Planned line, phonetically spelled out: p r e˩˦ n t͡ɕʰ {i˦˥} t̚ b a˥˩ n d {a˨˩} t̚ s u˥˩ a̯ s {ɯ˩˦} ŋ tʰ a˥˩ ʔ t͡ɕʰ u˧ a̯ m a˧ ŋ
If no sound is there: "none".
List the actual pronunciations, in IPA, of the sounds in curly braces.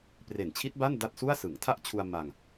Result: i˦˥, a˥˩, ɯ˩˦

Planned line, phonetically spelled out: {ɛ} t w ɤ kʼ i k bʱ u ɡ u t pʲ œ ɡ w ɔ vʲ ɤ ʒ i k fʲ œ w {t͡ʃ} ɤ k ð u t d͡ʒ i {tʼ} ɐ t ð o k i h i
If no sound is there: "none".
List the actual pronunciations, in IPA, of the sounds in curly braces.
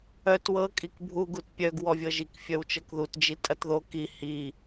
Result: œ, t͡ʃ, tʼ

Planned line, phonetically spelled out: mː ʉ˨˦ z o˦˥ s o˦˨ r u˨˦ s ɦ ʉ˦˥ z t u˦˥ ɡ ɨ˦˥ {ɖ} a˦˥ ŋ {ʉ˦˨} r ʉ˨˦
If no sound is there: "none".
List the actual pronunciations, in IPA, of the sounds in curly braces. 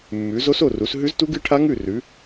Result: ʈʰ, ʉ˦˨

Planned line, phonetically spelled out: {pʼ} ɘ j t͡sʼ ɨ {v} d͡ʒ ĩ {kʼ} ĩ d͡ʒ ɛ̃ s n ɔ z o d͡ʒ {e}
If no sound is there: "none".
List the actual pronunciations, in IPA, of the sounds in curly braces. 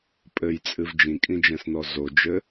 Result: pʼ, v, kʼ, ɘ

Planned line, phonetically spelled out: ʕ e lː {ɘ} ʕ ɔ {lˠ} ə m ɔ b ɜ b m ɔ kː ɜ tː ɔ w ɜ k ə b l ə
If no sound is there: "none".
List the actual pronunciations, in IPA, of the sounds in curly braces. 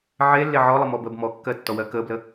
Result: e, lˠ

